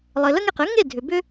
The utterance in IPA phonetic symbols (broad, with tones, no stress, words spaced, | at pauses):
lˠɘ˩lə˧ŋe˩q ɘ˩˥ ŋe˥˩dʱʏ˩ bʏ˧